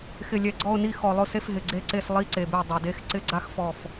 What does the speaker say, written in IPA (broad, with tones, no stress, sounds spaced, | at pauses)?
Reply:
x ɪ˨˩ lʲ ɛ˨˩ ɡ͡ǀ ɔ˦˨ ʊ̯ n i˦˨ x ɔ˨˩ lˠ ʊ˦˨ s e˦˨ f ɦ ɪ˨˩ ɡ͡ǀ e˦˨ ǀ e˦˨ s lˠ i˦˨ ǀ e˨˩ b ɪ˦˨ ʊ̯ dˤ ʊ˨˩ d e˦˥ x ǀ ɪ˦˥ ɡ͡ǀ a˦˥ x f ɔ˦˨ f